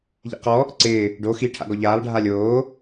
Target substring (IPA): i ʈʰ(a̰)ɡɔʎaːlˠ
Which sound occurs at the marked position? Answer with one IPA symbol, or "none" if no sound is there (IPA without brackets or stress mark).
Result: a̰